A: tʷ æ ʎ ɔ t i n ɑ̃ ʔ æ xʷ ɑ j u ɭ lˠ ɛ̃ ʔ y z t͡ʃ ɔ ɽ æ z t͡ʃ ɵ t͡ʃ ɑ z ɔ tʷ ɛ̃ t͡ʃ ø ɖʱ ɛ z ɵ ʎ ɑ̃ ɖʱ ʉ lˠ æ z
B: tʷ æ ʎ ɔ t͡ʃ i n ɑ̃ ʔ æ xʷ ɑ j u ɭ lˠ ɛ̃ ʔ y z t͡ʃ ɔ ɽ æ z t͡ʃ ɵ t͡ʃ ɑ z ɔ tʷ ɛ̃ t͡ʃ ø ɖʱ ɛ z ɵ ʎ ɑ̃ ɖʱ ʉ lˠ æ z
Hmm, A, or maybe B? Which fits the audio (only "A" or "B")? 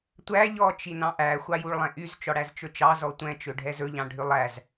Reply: B